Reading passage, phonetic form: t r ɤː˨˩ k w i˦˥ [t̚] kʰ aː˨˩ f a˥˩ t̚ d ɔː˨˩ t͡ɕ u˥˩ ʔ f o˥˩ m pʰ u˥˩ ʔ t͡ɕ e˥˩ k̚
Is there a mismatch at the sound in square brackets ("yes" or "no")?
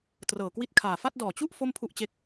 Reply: no